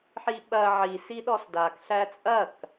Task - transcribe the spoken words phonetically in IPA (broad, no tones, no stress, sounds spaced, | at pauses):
ħ i ɓ ɐ ʕ i s i ɗ ɔ s d a k ɬ æ t͡sʼ ɐ k